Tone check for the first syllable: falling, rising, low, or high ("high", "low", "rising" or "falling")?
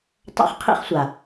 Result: high